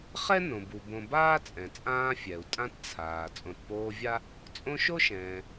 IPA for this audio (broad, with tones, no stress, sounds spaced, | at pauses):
χ ɛ˥ n õ˩ b u˩ b õ˨ b aː˥ t͡sʼ ɛ̃˩ t͡sʼ ãː˦ fʲ ɛ˩ u̯ tʼ ã˦ t t͡sʰ aː˩ t͡sʼ õ˨ t p oː˦ vʲ a˥ | t͡sʼ õ˦ ʃ o˥ ʃ ɛ̃ː˩